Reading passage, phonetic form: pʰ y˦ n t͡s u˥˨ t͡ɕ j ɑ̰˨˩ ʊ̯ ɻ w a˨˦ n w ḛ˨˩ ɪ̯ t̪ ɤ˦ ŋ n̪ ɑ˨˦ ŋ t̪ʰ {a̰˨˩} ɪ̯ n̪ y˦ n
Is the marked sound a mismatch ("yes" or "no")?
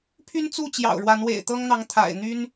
no